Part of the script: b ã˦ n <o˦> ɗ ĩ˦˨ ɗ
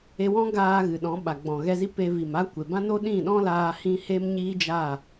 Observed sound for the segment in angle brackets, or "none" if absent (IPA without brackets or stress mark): o˦